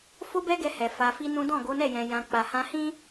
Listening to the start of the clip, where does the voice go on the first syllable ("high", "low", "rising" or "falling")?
high